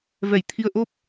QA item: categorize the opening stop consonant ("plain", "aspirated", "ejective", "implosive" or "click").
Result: aspirated